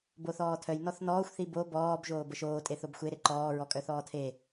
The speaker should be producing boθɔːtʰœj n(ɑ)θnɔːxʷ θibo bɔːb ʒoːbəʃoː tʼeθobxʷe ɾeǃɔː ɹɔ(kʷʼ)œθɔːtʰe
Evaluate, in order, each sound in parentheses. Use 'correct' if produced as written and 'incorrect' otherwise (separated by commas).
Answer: incorrect, incorrect